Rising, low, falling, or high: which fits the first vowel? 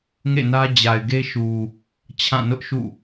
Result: falling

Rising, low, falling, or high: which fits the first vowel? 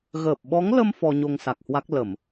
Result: low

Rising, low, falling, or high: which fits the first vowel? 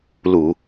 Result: low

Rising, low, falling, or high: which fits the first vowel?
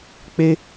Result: high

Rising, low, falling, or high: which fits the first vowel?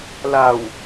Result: low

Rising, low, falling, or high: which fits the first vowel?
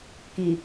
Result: low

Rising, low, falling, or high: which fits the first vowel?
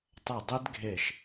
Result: falling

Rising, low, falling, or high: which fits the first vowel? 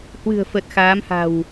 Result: low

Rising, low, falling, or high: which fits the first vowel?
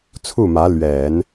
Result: falling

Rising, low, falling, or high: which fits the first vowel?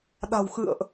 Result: low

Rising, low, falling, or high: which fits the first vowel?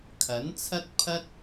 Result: rising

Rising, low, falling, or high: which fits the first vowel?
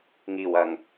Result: low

